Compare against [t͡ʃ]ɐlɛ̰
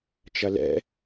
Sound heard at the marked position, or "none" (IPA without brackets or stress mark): t͡ʃ